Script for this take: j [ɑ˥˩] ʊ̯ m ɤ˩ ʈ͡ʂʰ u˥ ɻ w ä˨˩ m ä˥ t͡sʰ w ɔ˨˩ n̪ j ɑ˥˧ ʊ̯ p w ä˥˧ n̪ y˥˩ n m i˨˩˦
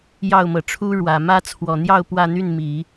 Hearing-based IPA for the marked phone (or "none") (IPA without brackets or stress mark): ɑ˥˩